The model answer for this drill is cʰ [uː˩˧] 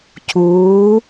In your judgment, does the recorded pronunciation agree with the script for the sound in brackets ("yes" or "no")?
yes